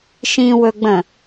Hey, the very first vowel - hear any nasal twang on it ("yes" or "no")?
yes